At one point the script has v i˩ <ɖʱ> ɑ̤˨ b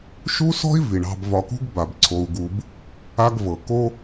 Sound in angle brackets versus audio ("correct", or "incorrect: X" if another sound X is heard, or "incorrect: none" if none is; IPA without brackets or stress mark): incorrect: ɳ